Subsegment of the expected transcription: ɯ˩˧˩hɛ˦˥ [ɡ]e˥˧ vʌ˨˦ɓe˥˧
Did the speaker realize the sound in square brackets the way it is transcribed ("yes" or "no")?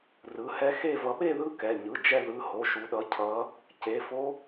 no